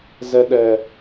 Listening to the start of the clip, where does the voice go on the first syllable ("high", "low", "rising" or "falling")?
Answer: high